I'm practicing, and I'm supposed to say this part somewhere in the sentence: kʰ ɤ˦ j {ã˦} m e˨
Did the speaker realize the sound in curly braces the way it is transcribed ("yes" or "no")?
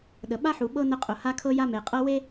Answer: no